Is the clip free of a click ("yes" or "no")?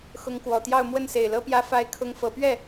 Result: yes